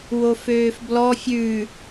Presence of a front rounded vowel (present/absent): present